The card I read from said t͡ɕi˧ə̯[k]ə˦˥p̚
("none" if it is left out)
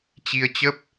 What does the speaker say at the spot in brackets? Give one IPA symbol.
t͡ɕ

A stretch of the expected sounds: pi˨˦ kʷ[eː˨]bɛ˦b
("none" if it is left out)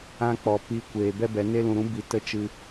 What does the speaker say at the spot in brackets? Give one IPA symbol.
eː˨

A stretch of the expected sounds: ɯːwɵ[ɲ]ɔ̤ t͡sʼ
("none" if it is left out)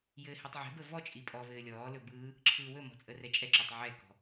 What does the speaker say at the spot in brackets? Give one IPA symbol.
m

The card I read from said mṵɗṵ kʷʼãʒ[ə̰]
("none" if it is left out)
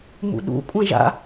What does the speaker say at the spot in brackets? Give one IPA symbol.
a̰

